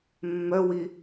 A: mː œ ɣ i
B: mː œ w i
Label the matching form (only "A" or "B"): B